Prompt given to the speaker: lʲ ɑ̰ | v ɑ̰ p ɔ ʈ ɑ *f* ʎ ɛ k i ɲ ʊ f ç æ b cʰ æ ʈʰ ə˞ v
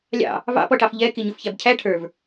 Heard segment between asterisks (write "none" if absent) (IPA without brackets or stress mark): f